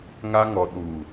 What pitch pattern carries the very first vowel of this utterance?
high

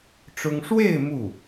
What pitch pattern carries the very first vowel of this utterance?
high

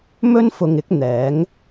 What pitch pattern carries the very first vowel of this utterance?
high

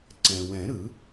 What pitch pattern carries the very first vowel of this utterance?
low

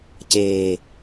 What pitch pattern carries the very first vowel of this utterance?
low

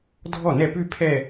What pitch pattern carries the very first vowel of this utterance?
falling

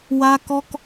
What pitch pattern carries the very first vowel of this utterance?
high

